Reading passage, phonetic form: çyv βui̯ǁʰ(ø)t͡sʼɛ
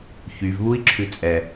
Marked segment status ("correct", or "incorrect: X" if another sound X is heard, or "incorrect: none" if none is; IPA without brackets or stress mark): incorrect: ʉ